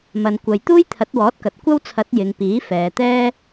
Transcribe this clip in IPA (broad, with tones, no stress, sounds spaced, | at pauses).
m ɐ˨ n kʷ ɐ˨ j t̪ uː˥ j t̪ʰ ɐ˨˥ t̚ w ɔː˨˥ t̚ k ɐ˨ t̚ kʷ ɐ˥ w t͡sʰ ɐ˨˥ t̚ j ɪ˨ ŋ p iː˨˥ f ɛː˨ t̪ ɛː˥